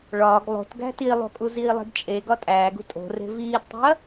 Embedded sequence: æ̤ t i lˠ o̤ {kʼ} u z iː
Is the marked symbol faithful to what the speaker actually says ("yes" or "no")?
yes